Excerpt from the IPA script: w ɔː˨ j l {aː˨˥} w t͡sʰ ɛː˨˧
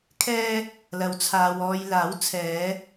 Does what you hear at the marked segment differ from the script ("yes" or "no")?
no